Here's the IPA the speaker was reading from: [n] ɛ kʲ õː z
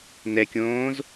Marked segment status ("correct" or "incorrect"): correct